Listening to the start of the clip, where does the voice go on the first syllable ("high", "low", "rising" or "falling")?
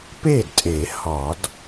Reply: falling